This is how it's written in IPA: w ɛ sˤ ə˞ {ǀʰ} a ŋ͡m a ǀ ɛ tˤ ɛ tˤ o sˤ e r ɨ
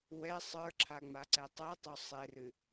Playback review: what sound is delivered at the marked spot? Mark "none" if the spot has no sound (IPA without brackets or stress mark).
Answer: ǁʰ